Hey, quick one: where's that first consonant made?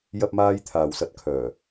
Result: palate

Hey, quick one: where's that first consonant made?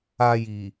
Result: palate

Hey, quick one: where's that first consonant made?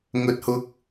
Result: velum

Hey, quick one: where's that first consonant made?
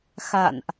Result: velum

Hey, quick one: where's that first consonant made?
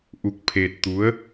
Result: throat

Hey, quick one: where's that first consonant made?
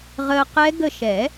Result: uvula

